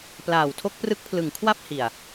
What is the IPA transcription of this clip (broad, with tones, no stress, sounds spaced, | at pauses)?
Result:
p l aː˨˩ w tʰ o˦˥ k̚ p r ɯ˦˥ k̚ pʰ l ɯ˨˩ ŋ kʰ w a˥˩ p̚ h i˨˩ a̯